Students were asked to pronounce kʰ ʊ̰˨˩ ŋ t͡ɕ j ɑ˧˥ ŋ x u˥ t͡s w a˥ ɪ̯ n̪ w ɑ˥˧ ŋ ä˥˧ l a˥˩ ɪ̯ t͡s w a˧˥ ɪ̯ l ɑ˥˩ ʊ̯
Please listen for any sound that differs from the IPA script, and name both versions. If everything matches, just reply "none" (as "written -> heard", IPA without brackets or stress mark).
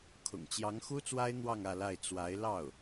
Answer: none